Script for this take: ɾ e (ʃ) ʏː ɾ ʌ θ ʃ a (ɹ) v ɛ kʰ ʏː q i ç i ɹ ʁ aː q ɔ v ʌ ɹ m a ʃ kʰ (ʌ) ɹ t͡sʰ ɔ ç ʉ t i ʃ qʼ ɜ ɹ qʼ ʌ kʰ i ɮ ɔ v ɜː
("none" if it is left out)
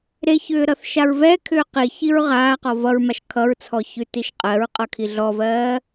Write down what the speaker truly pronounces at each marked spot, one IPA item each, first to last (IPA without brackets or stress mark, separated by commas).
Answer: ç, ɹ, ʌ